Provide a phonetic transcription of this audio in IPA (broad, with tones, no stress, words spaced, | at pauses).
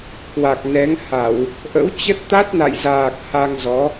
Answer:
kwa˨˩k̚nɛ˨˦ŋha˧˩˨w | ʔə̰˧˥wt͡ɕə˦˥t̚ t̪a˦˥t̚na̰˧˨jzaː˨˩k̚ ha˧ŋzɔ˨˦